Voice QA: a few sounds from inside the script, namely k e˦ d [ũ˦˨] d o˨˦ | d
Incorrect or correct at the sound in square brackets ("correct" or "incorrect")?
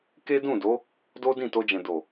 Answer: correct